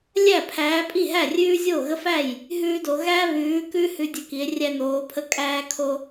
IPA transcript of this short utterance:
lʲ æ˥˩ pʰ æː˨˦ pʼ i˥˩ ɦ æ˥˩ rʲ ʉː˦ zʲ o˥˩ ɣ ə˦ f æ˥˩ j | ɦ ʉː˦ d o˨˦ ɣ æ˦ β ʉː˨˦ k ʉ˦ h ʉ˦ dʲ ə˥˩ k i˨˦ e̯ rʲ æ˦ n oː˨˦ pʰ ə˦ kʼ æː˦ kʰ o˦

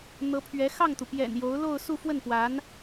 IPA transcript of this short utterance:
n̪ ɤ˧˥ pʰ ɥ ɛ˧˥ x ɑ˥˩ ŋ t̪ u˩ p j ɛ̰˨˩ n j o˧˥ ʊ̯ l o˥˧ ʊ̯ s u˥˧ f w ə˥˩ n p w a˧˥ n

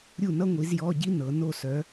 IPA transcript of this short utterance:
ɾʲ u˥˨ n ʌ˥ ŋʷ i˨˦ z j ɔ˧˥˧ ɟ i˥ n ɤ˨˦ n o˥˨ s œ˨˦

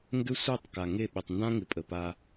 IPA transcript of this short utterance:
ŋ ɡ ʏ˦ sʷ ɛ˦˨ tˤ k a˨ ŋ e˦˨ ɓ ɪ˨ tˤ n d ã˦ ŋ ɪ˨ pʼ ə˨ p a˧

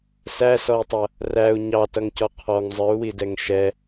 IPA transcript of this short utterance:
s æ s ɔ i̯ tˤ ʌ | r æ u̯ ɲ ɑ t ʌ ŋ c ɔ qʰ ɔ ŋ zˤ ə˞ u̯ w i d ɛ ŋ ʃ ɛ

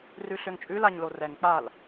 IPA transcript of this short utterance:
r ʉ ɬ ø ŋ t͡ʃʼ ʉ l a ɲ l o r ɛ ŋ k͡p a l

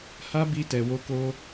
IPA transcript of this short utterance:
h a˦ b i˧ t ɛ˨ w o˧ k o˧

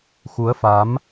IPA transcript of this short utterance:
x u˨˦ ə̯ f a˨˦ m

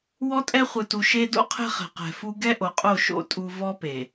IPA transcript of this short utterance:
w ɔ˦ tʼ ɛ˦ χʷ ɯ˨ t u˨ ʃ e˦ d o̰˦ qʰ ɛ̤˦ χ ɛ̤˨ q ɛ̤˨ f u˦ ɡ ɛ˦ ʔ o˨ qʼ o˦˨ ʃ o̰˦ tʼ u˦ v ɔ˦ p e˨

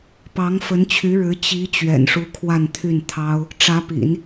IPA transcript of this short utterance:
p ɑ˧˥ ŋ f ə˧˥ n t͡ɕʰ y˧˥ ɻ ɻ̩˧˥ t͡ɕ i˧˥ t͡ɕ ɥ ɛ̰˨˩ n ʂ u˧˥ kʰ w a˥˧ n t̪ʰ y˥˩ n t̪ʰ ɑ˥ ʊ̯ | ʈ͡ʂ ä˧˥ p ḭ˨˩˦ n

